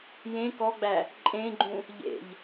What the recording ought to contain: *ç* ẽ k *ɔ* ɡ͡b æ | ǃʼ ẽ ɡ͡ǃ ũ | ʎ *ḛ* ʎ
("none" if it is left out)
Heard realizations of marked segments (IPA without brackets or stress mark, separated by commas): j, ɔ, ḛ